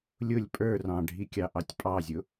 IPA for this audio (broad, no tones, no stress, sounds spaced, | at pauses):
lʲ ʊ lʲ pʼ ə˞ r ɑ̃ ɖʱ i kʲ ɑ ʔ ɑ tʲ pʼ ɑ zʲ ʊ